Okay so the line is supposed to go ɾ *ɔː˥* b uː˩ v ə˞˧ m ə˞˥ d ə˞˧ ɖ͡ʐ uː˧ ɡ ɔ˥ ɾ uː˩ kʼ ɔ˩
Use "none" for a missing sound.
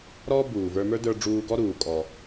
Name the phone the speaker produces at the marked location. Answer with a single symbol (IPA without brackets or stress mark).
ɔː˥